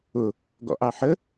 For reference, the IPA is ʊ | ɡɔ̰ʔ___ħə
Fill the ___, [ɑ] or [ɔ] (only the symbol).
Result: ɑ